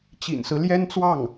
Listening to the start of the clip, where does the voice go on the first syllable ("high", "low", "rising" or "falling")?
low